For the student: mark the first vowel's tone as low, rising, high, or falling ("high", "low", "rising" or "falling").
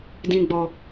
low